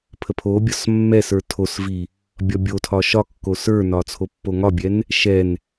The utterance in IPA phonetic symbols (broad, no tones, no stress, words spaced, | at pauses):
pʰəpʰobʲɒs mːɛsə˞ tʰosvi | bʲɒbʲotʰɒ ʃɒkːo sə˞nɒ t͡sʰopːoŋɒbʲɛn | ʃɛn